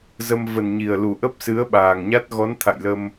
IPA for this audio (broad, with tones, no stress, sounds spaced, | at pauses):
z ə˧ m v ə˨˩ n ɲ i˨˩ ə̯ l u˨˩ ʔ ə˦˥ p̚ s ɨ˨˦ ə̯ ɓ aː˨˩ ŋ ɲ a˦˥ t̚ ɣ ɔ˨˦ n t̪ʰ a̰˧˨ j l ə˧ m